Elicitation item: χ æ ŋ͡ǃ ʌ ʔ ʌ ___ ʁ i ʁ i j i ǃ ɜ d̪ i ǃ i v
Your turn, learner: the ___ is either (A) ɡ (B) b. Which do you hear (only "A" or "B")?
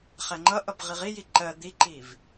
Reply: B